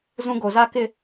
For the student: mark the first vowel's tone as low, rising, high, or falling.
high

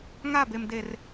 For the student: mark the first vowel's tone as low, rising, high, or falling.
falling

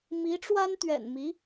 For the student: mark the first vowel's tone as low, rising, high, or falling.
rising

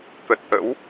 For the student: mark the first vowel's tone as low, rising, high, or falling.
low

